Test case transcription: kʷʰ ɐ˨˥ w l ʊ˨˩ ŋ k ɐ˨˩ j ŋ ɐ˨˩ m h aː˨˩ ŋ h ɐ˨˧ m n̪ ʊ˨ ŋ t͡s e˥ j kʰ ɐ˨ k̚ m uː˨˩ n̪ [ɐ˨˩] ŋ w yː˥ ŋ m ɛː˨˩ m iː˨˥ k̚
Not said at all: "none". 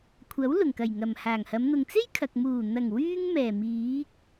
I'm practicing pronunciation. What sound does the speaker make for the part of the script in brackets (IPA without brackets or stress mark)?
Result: ɐ˨˩